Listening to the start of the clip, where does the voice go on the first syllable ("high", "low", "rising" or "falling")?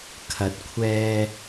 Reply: rising